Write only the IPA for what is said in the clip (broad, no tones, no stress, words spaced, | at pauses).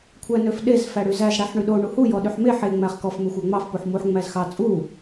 kʷʰænøfɗez fæɽyzæz ɽæħɳyɗo ɳuhu jɔɗyħme ħe ŋ͡mæχkɔf mexʷæŋ͡mɑf puħmuħ ŋ͡mæzxɑ t͡sʼu